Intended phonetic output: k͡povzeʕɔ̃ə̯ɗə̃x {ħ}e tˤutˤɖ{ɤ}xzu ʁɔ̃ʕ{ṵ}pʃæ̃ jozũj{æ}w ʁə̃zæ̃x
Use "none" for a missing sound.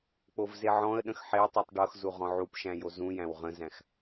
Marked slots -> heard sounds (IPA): ħ, ɤ, u, æ̃

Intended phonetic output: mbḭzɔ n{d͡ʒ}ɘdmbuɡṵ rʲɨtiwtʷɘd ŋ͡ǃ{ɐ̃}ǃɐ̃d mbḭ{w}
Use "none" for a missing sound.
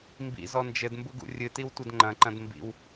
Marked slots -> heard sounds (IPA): d͡ʒ, ɐ̃, w

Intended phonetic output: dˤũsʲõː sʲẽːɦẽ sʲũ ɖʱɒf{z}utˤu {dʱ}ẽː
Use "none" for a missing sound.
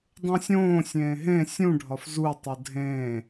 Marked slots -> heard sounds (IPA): z, dʱ

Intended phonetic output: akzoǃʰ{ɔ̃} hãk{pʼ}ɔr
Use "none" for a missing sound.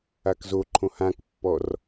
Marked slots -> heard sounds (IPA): õ, pː

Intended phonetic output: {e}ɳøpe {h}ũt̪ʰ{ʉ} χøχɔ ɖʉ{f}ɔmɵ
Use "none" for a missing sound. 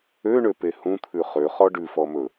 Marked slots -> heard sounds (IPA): ø, h, ʉ, f

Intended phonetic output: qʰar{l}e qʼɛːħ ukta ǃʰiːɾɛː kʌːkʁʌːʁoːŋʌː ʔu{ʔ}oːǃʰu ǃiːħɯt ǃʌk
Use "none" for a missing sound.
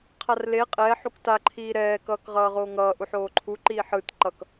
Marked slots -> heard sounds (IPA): l, ħ

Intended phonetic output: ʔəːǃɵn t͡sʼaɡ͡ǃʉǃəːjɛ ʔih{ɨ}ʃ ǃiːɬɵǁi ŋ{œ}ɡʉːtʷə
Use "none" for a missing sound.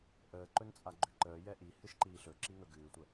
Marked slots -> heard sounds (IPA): ɨ, ɵ

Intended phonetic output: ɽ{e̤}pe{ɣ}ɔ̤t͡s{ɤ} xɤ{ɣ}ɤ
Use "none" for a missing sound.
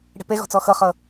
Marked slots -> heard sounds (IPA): e̤, ɣ, ɔ, χ

